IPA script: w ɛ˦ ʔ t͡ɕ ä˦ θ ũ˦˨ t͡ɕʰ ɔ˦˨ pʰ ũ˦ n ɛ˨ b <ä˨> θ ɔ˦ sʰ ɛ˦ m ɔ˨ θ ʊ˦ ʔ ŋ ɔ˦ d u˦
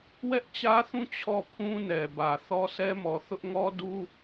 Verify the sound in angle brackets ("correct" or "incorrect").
correct